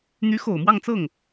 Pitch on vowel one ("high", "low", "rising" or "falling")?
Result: rising